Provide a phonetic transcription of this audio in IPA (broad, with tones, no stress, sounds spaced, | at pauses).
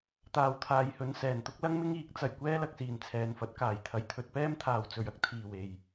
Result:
t̪ aː˨ w t̪ʰ aː˨ j h ɵ˨˧ n s ɛː˨˩ n t̪ ʊ˥ k̚ l ɐ˥ ŋ m ɪ˥ ŋ iː˨˥ k̚ t͡s ɐ˨ j kʷ ɛː˥ l ɐ˧ k̚ s iː˨˩ n t͡sʰ ɛː˨ n f ɐ˨˥ t̚ k aː˨˩ j t̪ʰ ɐ˨˩ j t̪ʰ ɵ˧ t̚ p ɛː˥ m t̪ʰ aː˨ w t͡s ɵ˨ ɥ ɐ˥ k̚ t̪ʰ iː˨˩ w e˨˩ j